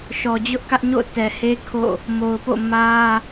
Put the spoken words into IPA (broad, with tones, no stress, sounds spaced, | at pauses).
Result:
ʃ ɔ˨ d͡ʑ ʊ˦ ʔ k ä˦ ʔ ɲ o̰˦˨ t ɛ˨ h e˦ kʰ o̰˦˨ | m o˨ ʊ̯ p o̰˦˨ m ä˦